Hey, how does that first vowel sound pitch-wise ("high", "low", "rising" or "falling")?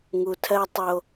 low